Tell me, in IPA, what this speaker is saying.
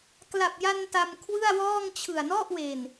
k l a˨˩ p̚ j a˧ n t a˧ m kʰ w ɯ˥˩ a̯ w ɔː˥˩ ŋ t͡ɕʰ ɯ˨˩ a̯ n ɔ˥˩ ʔ w e˨˩ n

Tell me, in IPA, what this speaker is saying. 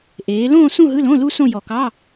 ʔ eː˨˦ l õː˥˧ s ũ˥˧ ɦ ɯ˧˥˧ l õ˧˥˧ l u˥ s õ˥˧ j ɔ˨˩ k ɑ˧˥˧

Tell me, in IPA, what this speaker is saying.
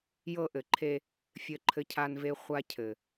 j ɤ˦ ʔ ɘ˨ ǃʰ e˦ | fʲ ɘ˨ ǃʰ ɘ˨ cʰ a˨ n v e˨ χʷ a˦ cʰ ɘ˨

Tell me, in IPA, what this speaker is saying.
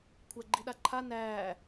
kʷʰ æ ɡ͡ǃ i ɗ a ǃʰ a n æː

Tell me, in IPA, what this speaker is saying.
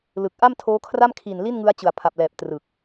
l ɯ˨˩ k̚ ʔ a˥˩ m tʰ oː˦˥ kʰ r a˥˩ m kʰ i˨˩ n l i˥˩ n ŋ ɯ˦˥ a̯ t͡ɕ ɯ˨˩ a̯ pʰ a˨˩ p̚ l ɛː˨˩ p̚ t r ɯ˨˩ k̚

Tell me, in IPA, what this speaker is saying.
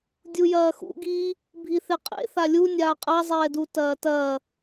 dʲ u j ɐː x ṵ ɡ iː | bʱ i θ e qʼ ḛ θ a lʲ u nʲ aː qʼ a zˤ ɛː d u t ɐː t ɐː

